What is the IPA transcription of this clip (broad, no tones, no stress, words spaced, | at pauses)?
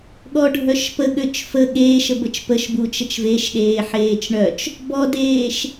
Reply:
ɠɔɖʱœʃpəɠøt͡ʃ fə ɠeːʃə bət͡ʃpəʃbu t͡ʃət͡ʃveʃ ɗeːħeːt͡ʃɳœt͡ʃ | bɔdeːʃ